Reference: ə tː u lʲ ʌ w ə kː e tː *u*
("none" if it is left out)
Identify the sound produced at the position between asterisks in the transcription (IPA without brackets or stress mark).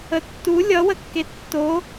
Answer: o